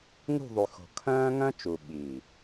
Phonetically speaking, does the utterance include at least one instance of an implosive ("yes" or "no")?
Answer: yes